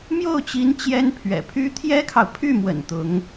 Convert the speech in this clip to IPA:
mjo˥˩ʊ̯t͡ɕi˧˥n t͡ɕjɛ˥npʰɥɛ̰˨˩pʰy˥ t̪ʰjɛ˥kʰɑ˨ʊ̯ pʰy˥˩mwə̰˨˩n t̪ʊ˧˥ŋ

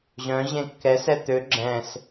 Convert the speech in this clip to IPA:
ʑœ̃ ʑẽkːɛsɛ t̪ø ɡ͡ǁɛ̃s

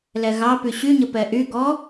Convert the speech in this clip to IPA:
lɛɣɑpy ɕyɲə pɛʔyɡɔ

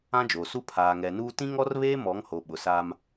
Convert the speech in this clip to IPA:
ã˦d͡ʒoː˨su˦ pʰaː˨ŋɛ˨nuː˦ tĩ˦ŋɔ˦rβeː˦ mɔ˨˦ŋ ho˨ɓʊ˨saː˦m

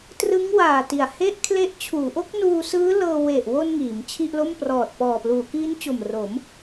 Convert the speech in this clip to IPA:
trɯ˦˥ŋwaː˨˩ ti˨˩a̯he˥˩ʔkʰle˦˥ʔ t͡ɕʰuː˩˦ʔo˦˥k̚ nuː˧sɯː˦˥lɤː˧ we˨˩ʔwo˧n ŋiː˩˦mt͡ɕʰi˥˩ʔlo˥˩m prɔː˨˩t̚pɔː˨˩pluː˩˦kiː˦˥n t͡ɕo˨˩mro˩˦m

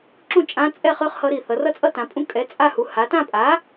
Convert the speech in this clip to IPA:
ǁũ˥˧t͡ʃʼã˧˥t͡sʼɛ˥˧χɯ˧˥χ hʌ˧˥ɾi˧˩θʌ˩˧ rʌ˥˧t͡sʼʌ˥˧tã˩˧pʼũ˧˥ kʼɛ˩˥ t͡sʼa˥˧hu˩˧ ha˩˧tã˥˧pʼa˩˥

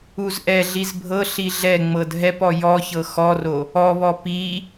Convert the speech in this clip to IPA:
uzʔɛɮiz bʱɤ ɬiɮɛŋ͡mɤd ɦɛpɔ jɔçɤ xɔro | ɔβɔ pi

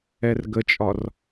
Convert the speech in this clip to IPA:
ɛrɡət͡ʃʼɒr

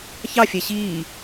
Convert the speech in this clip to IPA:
çɑfʲæ ɕiː

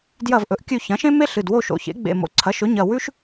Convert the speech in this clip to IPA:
djɐ˦˨vʔɵ˩˥ʔkʲʉ˦˨ çɐ̃˩˥ʃẽ˥me˥ɬɨ˩˧˩d wo˦˨ʃo̰˩˧˩ çḛ˩˥ ɡ͡bḛ˩˧˩mo̰˩˥ ǀʰɐ˩˥ʃɵ˩˥ɲɐ˩˧˩ wʉ˥ʃ

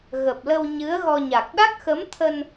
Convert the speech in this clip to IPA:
ɣə˨˩p̚lə˧w ɲɨ˨˦ə̯ɣɔ˧ɲa˨˩k̚ ɗa˦˥k̚xə˨˦m t̪ʰə˧n

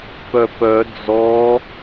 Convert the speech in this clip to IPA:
pœpœ d͡zɔ

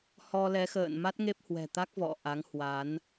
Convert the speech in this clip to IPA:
hɔ˧lɛ˨˦xə̰ː˧˨n ma˦˥t̚ŋe˦˥p̚hwɛ̤˨˩t̪a˦˥k̚ vɔ̰˧˨ ʔa˨˦ŋhwa˨˦n

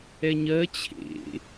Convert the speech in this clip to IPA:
ɛɲɜ t͡ɕʰḛ

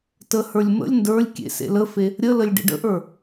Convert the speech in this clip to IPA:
təhə˞lʲ mə̰lʲ ndə˞lʲkʲḛ sḛləfe | ɾʲələlʲ ɖḛɖə̰ʔə˞

